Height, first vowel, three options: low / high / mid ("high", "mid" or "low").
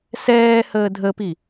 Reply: mid